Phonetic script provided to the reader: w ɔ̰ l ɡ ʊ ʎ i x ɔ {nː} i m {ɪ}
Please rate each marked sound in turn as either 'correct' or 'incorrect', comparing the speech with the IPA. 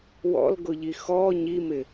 incorrect: ɲ, correct

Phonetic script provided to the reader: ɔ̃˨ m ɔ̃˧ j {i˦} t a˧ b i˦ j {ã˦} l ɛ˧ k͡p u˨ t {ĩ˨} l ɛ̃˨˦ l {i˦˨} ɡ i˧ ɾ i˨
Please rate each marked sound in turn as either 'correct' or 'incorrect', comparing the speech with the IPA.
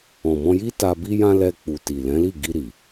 correct, correct, incorrect: i˨, correct

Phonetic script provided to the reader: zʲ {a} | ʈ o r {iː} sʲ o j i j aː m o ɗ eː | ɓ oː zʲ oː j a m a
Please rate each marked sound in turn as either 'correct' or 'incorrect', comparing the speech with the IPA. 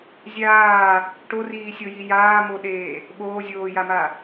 incorrect: aː, correct

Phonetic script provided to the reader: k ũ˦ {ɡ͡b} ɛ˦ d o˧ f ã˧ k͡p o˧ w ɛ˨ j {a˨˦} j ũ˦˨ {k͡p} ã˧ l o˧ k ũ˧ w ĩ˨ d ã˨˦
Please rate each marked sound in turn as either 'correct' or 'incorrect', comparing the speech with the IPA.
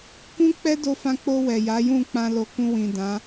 incorrect: k͡p, correct, correct

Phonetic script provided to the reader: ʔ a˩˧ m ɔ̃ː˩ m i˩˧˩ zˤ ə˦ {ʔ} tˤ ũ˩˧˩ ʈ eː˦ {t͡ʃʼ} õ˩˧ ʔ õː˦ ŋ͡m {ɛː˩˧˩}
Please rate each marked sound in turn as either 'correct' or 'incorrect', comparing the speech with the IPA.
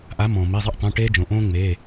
correct, incorrect: d͡ʒ, incorrect: eː˩˧˩

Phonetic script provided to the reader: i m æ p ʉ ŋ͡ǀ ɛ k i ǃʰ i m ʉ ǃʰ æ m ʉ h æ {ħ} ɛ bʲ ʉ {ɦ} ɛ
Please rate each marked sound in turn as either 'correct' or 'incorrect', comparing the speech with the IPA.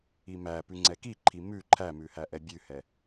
incorrect: ʔ, incorrect: h

